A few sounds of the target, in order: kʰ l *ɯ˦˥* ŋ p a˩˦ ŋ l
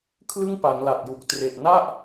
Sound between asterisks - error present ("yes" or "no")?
yes